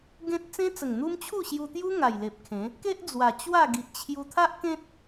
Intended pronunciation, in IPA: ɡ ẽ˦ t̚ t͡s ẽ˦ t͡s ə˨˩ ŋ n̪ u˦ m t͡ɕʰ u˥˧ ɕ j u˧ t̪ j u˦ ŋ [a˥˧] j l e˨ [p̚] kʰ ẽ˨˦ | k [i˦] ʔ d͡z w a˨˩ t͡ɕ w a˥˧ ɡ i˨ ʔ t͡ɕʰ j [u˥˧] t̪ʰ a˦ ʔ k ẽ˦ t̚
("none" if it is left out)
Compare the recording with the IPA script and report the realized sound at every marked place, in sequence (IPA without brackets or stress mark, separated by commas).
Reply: a˨˩, p̚, e˦, u˧